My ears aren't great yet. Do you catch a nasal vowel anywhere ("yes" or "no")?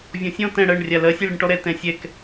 yes